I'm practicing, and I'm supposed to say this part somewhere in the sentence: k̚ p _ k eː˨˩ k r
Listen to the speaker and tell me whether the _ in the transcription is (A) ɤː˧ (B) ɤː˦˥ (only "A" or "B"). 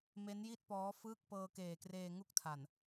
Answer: A